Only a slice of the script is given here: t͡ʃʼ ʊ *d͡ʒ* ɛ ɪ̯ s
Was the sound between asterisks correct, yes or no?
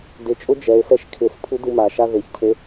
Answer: yes